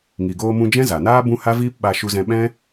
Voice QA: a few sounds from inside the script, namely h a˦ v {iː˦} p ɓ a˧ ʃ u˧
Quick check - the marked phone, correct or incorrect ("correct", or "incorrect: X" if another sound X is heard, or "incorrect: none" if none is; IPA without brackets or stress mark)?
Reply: correct